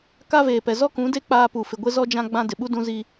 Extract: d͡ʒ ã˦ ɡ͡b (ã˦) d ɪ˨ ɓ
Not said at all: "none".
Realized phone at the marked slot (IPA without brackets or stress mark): ã˦